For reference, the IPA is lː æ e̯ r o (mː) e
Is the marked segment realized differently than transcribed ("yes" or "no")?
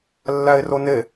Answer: yes